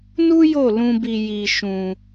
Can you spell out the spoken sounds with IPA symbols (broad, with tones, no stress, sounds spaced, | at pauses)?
n u˦ j o˦˨ l ũ˧ b i˧ j i˧ ʃ ũ˧